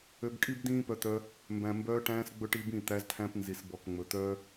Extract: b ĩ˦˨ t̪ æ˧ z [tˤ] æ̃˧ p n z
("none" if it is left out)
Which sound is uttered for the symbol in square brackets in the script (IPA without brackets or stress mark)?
tʰ